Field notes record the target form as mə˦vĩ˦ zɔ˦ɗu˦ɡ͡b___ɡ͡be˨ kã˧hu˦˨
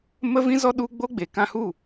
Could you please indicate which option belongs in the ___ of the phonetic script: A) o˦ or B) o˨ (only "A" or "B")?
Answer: A